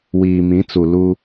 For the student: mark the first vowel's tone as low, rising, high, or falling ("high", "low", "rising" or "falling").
low